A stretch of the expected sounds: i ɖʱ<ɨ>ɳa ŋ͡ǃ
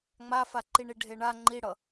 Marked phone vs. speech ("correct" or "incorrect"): incorrect